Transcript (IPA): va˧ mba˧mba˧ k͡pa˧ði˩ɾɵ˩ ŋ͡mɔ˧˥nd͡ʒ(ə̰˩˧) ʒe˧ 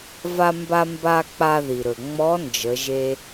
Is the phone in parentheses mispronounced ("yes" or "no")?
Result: yes